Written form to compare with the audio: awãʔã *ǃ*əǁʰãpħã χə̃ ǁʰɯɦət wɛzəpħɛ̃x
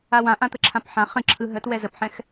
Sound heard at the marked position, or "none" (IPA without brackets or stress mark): t̪